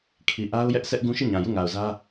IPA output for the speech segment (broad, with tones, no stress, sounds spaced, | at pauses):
kʰ i˨ ʔ a˦ ʊ̯ j ɛ˦ ʔ sʰ ɛ˦ ʔ ɡ ũ˦ ʃ i˦˨ ɲ ã˨ j u˦˨ ŋ a˨ ʊ̯ z ä˦